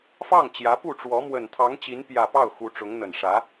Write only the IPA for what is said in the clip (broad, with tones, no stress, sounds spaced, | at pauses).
f ɑ˥˩ ŋ t͡ɕ j ä˧˥ p u˥˩ ʈ͡ʂ w ɔ˧˥ m w ə˨˩ n t̪ʰ ɑ˧˥ ŋ t͡ɕ i˧˥ n p j ä˨˩ p ɑ˥˩ ʊ̯ x u˧˥ ʈ͡ʂ ʊ˧˥ ŋ n̪ ə˨˩ n ʂ ä˧˥